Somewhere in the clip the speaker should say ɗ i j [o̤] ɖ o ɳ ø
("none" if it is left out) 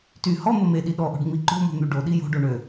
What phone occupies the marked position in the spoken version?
o̤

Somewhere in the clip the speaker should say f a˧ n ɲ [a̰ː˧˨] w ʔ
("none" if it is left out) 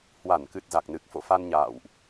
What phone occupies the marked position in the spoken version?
a̰ː˧˨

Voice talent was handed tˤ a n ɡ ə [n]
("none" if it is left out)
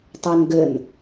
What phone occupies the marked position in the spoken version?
n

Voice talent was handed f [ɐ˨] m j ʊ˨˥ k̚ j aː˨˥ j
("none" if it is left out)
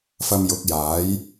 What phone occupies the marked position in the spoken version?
ɐ˨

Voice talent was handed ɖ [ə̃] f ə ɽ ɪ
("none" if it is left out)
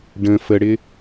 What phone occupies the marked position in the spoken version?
ə̃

